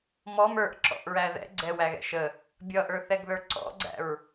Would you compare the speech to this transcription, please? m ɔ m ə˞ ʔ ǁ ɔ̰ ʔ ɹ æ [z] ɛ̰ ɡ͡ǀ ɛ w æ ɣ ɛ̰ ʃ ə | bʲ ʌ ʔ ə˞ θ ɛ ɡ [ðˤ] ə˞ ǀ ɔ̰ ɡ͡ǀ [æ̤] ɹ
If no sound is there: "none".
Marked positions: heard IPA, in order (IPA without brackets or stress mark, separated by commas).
ð, ð, æ̰